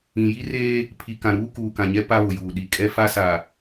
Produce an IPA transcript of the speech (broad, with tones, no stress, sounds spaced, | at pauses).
ĩ˨ j i˦ r eː˦ | pʰ i˨ k ã˨ ɾ uː˦ k uː˨ k ã˨ ɲ ɛ˦ p a˦ β ʊ˨ j uː˨ ɗ i˨ kʼ ɛ˦ f a˦ s a˨